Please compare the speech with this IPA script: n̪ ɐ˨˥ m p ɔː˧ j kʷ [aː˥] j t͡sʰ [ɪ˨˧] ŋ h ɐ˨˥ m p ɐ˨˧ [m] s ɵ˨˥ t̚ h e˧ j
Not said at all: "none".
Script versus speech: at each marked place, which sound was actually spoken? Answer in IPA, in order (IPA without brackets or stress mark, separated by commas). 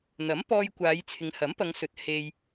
aː˨˧, ɪ˨˧, ŋ